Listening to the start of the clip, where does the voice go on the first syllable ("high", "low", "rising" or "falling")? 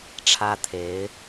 high